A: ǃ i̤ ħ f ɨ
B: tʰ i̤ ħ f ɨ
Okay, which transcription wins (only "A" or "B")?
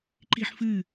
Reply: A